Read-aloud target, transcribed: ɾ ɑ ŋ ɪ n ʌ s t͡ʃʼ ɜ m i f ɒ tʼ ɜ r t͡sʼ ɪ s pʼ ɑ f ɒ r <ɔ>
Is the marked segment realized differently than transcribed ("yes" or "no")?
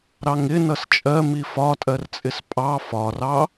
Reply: yes